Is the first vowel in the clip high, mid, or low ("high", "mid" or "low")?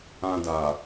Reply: low